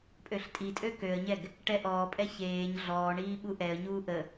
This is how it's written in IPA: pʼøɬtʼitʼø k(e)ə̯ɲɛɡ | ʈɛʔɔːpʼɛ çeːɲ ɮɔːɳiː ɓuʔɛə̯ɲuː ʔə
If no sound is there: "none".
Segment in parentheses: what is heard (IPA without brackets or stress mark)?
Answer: ø